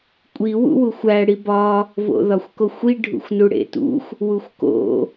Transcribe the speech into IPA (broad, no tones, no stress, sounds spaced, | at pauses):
kʷʼ i w ṵ w u xʷ æ ɽ i b ɒ | v o̰ ð ɒ xʷ k o xʷ i ɖʱ ṵ xʷ n u ɽ ḛ t ṵ xʷ | w u xʷ k o̰